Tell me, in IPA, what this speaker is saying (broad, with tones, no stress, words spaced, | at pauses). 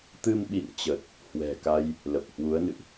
t̪ɨ˧mɓḭ˧˨nt͡ɕə˨˩t̚ | hwɛ̤˨˩ka˧j | lə˨˩p̚hwu˨˦ə̯nɨ̰˧˨ʔ